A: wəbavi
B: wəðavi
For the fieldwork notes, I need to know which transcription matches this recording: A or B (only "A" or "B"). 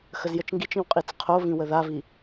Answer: B